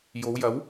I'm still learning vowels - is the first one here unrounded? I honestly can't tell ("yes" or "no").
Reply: no